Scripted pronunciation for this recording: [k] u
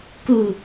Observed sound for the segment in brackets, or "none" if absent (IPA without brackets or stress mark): k